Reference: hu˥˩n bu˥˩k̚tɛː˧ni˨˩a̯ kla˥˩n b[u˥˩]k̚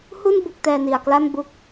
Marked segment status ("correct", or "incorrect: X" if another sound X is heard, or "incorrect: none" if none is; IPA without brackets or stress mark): correct